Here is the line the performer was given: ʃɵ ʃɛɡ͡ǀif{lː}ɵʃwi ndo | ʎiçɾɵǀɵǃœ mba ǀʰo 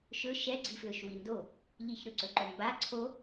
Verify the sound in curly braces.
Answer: incorrect: l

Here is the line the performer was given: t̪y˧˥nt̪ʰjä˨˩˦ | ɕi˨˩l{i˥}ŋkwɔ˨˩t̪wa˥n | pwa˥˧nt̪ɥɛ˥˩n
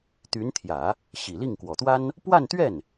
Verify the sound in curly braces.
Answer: incorrect: i˥˩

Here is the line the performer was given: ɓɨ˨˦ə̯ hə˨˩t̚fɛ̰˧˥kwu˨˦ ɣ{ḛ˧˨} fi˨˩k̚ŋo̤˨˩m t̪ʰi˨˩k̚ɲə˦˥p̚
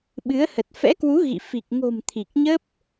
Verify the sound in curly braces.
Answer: incorrect: ḭ˧˨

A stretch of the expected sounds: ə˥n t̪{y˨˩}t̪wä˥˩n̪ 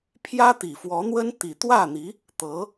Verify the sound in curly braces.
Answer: incorrect: i˨˩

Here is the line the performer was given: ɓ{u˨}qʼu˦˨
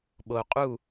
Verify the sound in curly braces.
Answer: incorrect: o˨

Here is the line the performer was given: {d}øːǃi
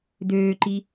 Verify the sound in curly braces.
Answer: correct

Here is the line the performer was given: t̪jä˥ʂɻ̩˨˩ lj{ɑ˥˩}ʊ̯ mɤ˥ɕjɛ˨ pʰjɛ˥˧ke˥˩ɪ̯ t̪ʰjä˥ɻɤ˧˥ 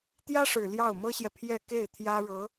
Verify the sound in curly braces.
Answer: correct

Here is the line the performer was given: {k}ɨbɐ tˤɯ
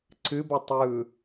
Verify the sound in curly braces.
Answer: incorrect: ǀ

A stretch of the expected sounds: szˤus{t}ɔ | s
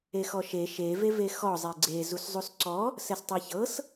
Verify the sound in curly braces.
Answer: incorrect: ǀ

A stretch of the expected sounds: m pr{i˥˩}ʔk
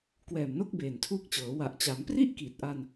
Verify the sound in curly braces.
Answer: correct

